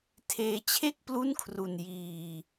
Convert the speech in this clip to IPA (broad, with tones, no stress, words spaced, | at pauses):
tʰeː˧t͡ɕʰe˥˩k̚ plu˥˩nkʰru˧n jiː˧